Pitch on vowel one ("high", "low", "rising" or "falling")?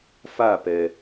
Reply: falling